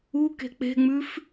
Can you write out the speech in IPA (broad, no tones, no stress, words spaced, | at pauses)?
u ke̤k͡pe̤ŋ͡mʉf